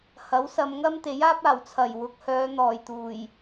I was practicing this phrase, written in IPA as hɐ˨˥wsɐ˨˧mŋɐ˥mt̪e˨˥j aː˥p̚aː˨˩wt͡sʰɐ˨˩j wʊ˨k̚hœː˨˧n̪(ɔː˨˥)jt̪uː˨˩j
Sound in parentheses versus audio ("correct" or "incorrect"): incorrect